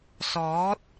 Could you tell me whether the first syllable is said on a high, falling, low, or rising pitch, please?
rising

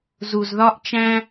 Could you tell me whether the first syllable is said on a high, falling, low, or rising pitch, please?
low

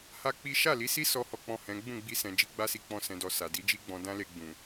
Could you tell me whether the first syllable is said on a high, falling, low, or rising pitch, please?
high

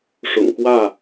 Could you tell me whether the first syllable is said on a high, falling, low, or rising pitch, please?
low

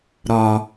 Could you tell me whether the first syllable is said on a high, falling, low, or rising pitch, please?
low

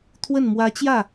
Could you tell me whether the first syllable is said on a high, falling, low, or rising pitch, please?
falling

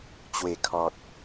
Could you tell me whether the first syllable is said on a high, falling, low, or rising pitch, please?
low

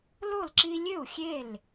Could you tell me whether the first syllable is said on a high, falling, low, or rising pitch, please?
falling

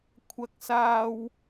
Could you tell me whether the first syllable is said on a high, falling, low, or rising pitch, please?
high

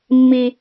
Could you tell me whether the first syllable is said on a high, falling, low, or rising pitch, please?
high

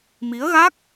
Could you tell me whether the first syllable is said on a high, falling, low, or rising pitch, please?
rising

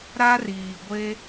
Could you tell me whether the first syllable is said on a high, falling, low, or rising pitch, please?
high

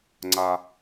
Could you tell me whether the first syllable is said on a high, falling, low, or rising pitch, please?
high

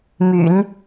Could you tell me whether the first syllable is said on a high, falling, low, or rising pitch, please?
low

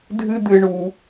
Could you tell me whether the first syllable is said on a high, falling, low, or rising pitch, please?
high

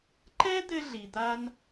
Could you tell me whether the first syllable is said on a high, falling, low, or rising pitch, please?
high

